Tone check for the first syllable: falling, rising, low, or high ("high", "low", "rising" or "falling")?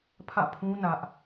falling